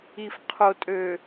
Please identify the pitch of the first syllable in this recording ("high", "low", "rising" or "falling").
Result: low